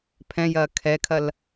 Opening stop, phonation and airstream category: aspirated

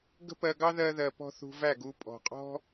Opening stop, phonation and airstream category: plain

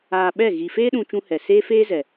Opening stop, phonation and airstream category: implosive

